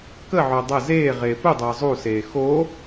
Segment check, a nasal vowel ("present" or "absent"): absent